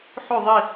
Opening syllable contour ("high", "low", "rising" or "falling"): falling